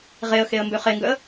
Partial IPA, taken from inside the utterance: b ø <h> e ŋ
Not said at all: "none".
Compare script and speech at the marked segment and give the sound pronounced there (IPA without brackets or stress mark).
χ